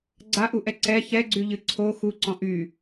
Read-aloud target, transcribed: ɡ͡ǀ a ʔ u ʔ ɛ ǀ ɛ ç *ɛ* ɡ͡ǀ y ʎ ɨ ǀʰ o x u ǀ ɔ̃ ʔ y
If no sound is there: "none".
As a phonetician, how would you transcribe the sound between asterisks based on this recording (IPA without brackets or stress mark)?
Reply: ɛ